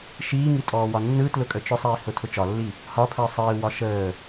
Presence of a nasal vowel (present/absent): absent